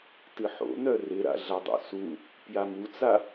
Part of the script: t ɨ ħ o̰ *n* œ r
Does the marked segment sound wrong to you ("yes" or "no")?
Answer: no